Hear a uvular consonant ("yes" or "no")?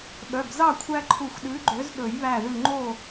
no